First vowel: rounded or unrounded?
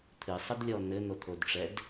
unrounded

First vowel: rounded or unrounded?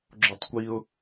rounded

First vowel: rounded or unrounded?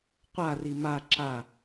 unrounded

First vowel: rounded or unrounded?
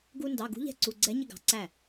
rounded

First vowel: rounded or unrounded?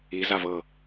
unrounded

